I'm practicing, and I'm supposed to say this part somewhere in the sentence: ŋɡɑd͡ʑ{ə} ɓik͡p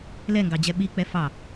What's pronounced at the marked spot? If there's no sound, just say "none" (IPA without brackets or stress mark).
ɛ